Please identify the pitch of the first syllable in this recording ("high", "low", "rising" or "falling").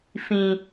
high